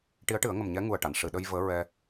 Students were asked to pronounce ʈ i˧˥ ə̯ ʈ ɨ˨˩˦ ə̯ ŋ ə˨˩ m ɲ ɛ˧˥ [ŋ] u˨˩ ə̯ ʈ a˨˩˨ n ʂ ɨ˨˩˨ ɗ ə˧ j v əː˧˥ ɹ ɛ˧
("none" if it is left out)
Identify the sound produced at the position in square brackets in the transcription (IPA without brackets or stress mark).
ŋ